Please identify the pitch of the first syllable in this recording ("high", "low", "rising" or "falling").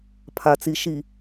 low